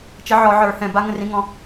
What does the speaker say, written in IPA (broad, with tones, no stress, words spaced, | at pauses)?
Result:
t͡ʃə˨˥ʕɔ˧˩˧ʕə˞˧˩˧hɛ̃˧˩ ba˦ŋə̃˦rĩ˨˥ŋɔ̃˦